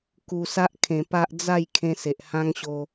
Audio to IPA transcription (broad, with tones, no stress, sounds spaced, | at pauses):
k u˨˩ s a˦ ʔ kʰ ẽ˨˩ p a˦ ʔ d͡z a˥˧ j kʰ ẽ˦ s e˨ ʔ h ã˦ ŋ ɕ o˧